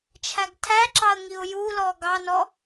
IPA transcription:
t͡ʃʰ æ ɡ tʰ æ ǁ ɑ ə̯ ŋ i ʊ̯ j u l ɔ ɡ ɑ n ɔ

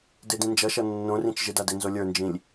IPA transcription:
d e d ĩ n d͡ʒ ʌ ʃ ʌ nː õ r ĩ t͡ʃ ʒ ɪ d a d e n z o lʲ ə˞ n d͡ʒ ĩ lʲ

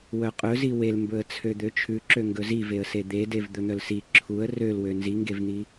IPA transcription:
w œ qʼ ɵ z i w e l m b ɵ ə̯ t͡sʰ ø d̪ ø t͡ʃʰ ʉ ǁ ø ŋ ɡ ɵ z i v e ə̯ s e d̪ e d e v d̪ ɵ n̪ œ l s i ǁʰ u ə̯ r ø l w ø n z i ŋ ɡ e v n̪ i

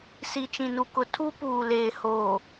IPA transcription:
s i˨ t͡ʃ ĩ˨ n u˨ k ʊ˨ tʰ u˦ p uː˨ l eː˨ h oː˨

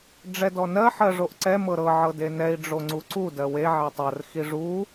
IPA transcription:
ɖ͡ʐ ɛ d ɔ n ɜ ħ ɜ ʐ o ʔ ǀ ɛ m ɤ ɾ ɤ ʕ ɤ d e n ɛ i̯ ɖ͡ʐ o ŋ͡ǀ u ǀ u d ɜ w e ʕ e tˤ ɜ r x i ʐ u

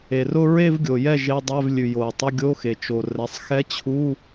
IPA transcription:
e˩ r ʊ˥˧ ɹ e˥˧ v ɡʲ o˩ j ɛ˥˩ ʒ e˧˥˧ dˤ ɛ˧˥˧ v lʲ ʉ˩ j o˩ ɹ tˤ ʊ˧˥˧ ɡʲ o˧˥˧ x e˩ t͡ʃ o˩ r ɛ˩˧˩ sˤ x ɛ˧˥ t͡ɕʰ u˧˥˧

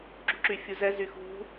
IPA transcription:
ɡ͡ǁ ṳ ǁ y fʲ u z ɛ z y x ṳ

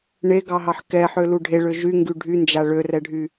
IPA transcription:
ɳ e ɡ ɑ ɦ ɑ ħ k ɛ ħ ø l u ɖʱ e ɭ ø ʒ y ŋ ɡ y ɖʱ y n d͡ʒ a ɭ ø r ɛ ɖʱ y

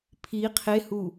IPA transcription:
pʰ i qʰ e h u

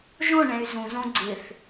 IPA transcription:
ʒ õ ɳ ɛ̃ y̯ z ũ z õ ɡ͡ǀ ɪ θ

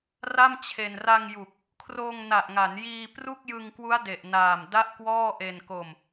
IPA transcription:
r a˥˩ m t͡ɕʰ e˧ n r a˧ ŋ j u˨˩ k̚ | kʰ r oː˧ ŋ n a˨˩ ʔ ŋ a˩˦ n j iː˧ p r u˥˩ k̚ j ɯ˧ ŋ k w u˦˥ a̯ d e˨˩ ʔ n aː˨˩ m d a˥˩ ʔ k w ɔː˥˩ ʔ e˧ n k o˧ m

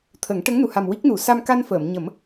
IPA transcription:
t̪ʰ ə˨˩˦ ŋ ʈ ə˧˥ ŋ n u˨˩ h a˨˩ m w i˦˥ k̚ n u˨˩˦ s a˧ m k a˧ n f əː˨˩˨ m ɲ ə˨˩˦ m

